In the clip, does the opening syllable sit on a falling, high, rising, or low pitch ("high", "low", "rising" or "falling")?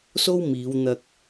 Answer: high